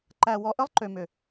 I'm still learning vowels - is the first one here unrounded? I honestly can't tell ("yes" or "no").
yes